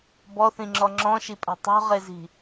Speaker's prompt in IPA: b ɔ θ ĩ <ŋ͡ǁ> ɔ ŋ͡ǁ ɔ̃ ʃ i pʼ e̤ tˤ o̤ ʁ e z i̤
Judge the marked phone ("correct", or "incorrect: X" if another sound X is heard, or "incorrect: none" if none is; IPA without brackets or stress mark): correct